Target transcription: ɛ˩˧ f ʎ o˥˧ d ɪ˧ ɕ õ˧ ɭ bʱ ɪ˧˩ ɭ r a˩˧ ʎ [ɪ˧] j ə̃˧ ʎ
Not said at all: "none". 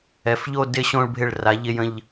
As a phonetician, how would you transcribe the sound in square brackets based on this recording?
ɪ˧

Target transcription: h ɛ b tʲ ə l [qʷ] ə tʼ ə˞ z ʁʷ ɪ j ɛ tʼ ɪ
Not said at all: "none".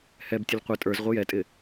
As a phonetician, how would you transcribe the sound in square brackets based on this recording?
qʷ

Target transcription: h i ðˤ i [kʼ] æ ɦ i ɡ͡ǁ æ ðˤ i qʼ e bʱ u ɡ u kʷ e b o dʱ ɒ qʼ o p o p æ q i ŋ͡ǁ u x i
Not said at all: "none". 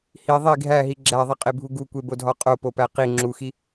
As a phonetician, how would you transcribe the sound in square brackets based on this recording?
ɡʱ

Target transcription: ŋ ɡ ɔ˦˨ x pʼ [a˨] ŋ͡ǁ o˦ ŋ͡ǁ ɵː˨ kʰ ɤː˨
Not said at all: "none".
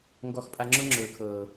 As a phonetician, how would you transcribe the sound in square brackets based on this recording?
a˦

